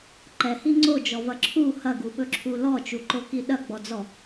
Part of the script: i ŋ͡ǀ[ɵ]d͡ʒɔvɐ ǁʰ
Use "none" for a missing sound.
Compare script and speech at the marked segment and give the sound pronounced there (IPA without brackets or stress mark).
o